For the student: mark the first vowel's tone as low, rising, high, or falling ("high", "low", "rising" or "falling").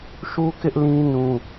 high